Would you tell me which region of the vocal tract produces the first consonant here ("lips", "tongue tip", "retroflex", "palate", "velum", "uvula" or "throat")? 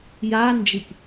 palate